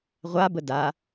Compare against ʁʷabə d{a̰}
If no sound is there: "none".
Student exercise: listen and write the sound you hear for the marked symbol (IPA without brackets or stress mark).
a